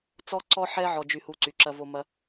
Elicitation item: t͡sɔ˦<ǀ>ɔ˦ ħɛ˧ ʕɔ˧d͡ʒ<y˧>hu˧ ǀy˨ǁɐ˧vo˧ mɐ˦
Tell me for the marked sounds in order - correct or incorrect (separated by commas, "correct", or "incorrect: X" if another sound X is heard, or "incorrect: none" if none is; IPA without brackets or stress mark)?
correct, correct